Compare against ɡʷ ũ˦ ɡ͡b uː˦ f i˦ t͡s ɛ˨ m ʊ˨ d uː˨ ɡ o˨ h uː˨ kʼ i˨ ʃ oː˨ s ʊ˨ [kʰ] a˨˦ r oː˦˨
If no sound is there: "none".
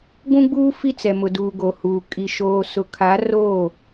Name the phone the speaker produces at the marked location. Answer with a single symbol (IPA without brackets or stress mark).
kʰ